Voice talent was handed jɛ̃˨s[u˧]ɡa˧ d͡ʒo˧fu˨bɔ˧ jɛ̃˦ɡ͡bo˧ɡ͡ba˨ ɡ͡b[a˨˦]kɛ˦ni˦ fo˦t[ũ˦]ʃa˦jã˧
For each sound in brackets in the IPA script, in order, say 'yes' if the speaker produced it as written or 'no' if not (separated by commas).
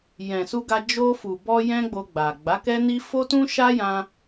yes, yes, yes